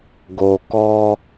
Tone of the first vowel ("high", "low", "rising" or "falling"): low